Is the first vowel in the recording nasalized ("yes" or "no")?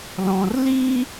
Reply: yes